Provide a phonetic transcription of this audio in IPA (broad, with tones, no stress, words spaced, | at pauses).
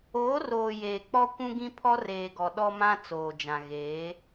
oː˨˦roː˨ jeː˨k͡pɔ˦ kʷũ˦ɡĩ˦pʰɔ˦ reː˨ɡɔ˨ ɗɔ˦mã˦ t͡soː˨d͡ʒã˨ ɣeː˨˦